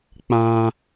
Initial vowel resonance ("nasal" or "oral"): nasal